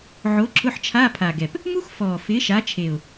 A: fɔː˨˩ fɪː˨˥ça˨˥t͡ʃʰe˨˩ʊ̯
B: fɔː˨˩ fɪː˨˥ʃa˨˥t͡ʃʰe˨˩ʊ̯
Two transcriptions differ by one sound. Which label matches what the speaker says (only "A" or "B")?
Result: B